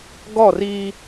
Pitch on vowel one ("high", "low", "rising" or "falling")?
falling